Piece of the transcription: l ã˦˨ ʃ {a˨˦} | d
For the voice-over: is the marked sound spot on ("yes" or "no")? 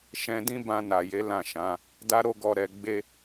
no